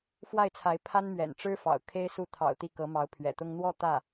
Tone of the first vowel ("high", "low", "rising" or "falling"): falling